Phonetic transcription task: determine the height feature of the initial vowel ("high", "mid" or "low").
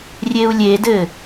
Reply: mid